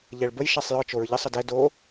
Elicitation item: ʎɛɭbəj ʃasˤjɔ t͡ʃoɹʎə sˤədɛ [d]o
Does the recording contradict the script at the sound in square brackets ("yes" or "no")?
no